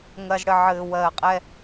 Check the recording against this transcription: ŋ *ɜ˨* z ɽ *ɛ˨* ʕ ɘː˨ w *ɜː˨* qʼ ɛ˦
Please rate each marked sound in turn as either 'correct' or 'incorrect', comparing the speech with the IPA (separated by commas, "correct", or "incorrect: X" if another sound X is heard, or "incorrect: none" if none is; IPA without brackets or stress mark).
correct, incorrect: ɘ˨, correct